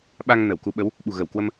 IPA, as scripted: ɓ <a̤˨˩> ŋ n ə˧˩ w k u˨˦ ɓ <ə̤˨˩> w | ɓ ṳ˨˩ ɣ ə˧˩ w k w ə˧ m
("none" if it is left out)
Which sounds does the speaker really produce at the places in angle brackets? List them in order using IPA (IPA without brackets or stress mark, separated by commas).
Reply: a˧, ə˨˦